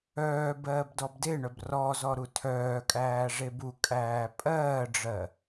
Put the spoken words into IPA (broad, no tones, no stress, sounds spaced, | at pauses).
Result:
œː b ɜː b d ɔ b d e ɳ œ b r ɔ z ɔ ɾ u tʰ œː kʼ æː ʐ e b u kʼ æː pʼ ɜː ɖ͡ʐ ɜ